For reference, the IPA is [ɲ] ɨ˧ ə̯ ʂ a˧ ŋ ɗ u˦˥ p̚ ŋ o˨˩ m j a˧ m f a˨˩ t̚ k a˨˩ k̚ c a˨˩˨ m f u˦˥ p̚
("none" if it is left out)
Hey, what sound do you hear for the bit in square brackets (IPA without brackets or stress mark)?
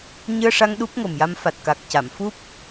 ɲ